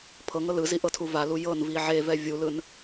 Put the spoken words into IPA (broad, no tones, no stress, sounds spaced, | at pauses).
pʰ ɤ ŋ ɤ l ɯ z i ʔ ɤ tʰ u v a l u j ɤ n v i ʕ e v ɛ vʲ u l ɯ n